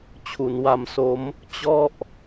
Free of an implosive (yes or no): yes